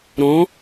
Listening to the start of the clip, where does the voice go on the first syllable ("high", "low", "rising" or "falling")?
rising